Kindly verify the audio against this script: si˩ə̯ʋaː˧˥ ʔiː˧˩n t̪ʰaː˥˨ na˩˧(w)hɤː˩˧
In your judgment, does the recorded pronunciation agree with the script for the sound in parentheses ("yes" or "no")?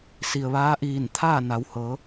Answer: yes